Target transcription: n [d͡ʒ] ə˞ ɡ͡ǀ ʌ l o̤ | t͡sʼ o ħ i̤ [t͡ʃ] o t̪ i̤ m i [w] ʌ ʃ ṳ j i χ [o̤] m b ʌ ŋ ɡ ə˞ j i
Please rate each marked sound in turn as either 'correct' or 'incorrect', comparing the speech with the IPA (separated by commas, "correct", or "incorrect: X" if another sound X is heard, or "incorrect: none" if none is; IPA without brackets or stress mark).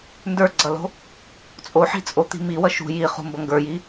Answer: incorrect: d, incorrect: t͡sʼ, correct, incorrect: ṳ